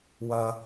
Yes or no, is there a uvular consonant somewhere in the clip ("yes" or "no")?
no